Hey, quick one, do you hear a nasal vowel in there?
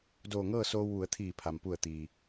no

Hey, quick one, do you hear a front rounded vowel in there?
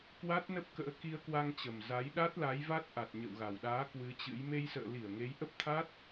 no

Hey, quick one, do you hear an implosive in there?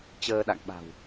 yes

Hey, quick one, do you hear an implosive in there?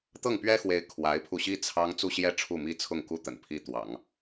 no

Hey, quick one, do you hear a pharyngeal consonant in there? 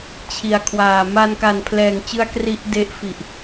no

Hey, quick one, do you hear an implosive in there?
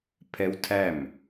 no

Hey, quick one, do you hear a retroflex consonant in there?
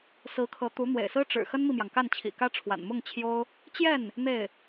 yes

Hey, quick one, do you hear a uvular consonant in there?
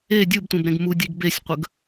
yes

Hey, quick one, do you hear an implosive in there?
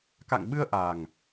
yes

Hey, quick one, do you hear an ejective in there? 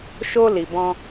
no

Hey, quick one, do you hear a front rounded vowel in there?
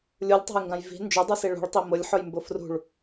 no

